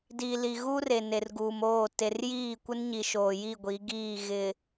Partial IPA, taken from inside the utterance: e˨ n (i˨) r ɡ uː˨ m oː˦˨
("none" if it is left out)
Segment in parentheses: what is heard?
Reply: e˨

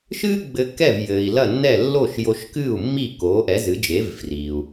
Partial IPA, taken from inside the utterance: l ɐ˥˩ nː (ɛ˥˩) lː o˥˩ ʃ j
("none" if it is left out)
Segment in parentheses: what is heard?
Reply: ɛ˥˩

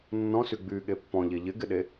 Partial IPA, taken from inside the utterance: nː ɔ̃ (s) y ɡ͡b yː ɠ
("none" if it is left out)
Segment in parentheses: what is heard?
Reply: s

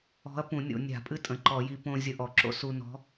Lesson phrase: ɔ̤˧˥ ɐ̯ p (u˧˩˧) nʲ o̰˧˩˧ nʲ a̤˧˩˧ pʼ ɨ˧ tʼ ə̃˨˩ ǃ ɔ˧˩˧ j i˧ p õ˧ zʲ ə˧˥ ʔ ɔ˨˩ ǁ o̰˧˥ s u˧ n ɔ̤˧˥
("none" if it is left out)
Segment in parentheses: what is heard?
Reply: ũ˧˩˧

